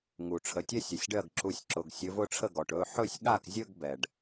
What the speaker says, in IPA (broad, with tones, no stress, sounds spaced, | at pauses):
ŋ u˩ ʈ͡ʂʰ ə˩˧˩ tʲ ɛ˥˧ sʲ ə˩˧˩ sʲ ɖ ɜ˥˩ ɡ ǁ u˨˦ sʲ ǁ ʊ˩˧˩ ɡ sʲ ɵ˨˦ v ʊ˥˧ ʈ͡ʂʰ ə˥˩ ɡ ɔ˩ ʈ ɵ˩˧˩ ħ ɵ˥˩ sʲ ɠ a˥˩ k zʲ ɵ˥˧ ɡ b ɛ˩ ɖ